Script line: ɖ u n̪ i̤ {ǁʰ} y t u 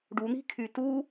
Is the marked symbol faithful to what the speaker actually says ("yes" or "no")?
no